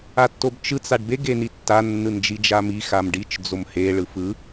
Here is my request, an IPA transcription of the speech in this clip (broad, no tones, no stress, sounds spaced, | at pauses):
a tː o b t͡ʃ ɯ t͡s a ɖ b e ɡ e n i tː a nː ɯ n d͡ʒ i d͡ʒ a m i x a m ɖ i t͡ʃ d͡z o m h e ɭ ɯ f ɯ